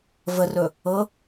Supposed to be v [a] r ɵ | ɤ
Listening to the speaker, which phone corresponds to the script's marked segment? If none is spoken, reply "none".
ə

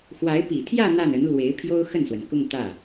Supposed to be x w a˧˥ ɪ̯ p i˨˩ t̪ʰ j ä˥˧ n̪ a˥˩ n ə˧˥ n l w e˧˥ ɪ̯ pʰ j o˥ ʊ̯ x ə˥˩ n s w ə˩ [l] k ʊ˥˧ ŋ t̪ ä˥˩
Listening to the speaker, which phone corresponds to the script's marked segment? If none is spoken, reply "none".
n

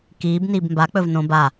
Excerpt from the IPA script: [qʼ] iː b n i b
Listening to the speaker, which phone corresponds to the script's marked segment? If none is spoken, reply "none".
k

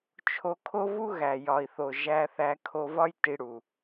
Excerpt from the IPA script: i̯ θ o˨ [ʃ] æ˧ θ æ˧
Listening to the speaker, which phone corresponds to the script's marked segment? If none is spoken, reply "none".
ʒ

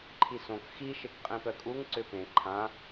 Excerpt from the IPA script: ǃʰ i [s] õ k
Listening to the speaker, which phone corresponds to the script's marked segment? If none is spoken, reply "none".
s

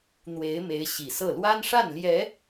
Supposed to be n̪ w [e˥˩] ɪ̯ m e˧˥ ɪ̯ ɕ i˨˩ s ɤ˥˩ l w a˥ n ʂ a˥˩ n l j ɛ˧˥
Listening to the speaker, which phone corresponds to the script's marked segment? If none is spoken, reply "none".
e˧˥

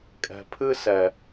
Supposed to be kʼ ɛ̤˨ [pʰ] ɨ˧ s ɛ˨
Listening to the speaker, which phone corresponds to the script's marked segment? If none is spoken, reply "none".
pʰ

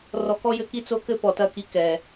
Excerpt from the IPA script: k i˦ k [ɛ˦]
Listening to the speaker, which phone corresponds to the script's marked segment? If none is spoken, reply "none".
ɛ˨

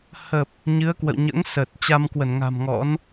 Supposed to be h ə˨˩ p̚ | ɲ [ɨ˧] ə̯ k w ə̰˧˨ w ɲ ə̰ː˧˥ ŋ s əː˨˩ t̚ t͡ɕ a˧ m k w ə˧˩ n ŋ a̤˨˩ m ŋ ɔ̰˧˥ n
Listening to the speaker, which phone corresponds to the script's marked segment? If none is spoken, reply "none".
ɨ˨˦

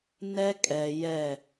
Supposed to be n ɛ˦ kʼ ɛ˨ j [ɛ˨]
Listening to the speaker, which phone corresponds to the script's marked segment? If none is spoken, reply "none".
ɛ˦˨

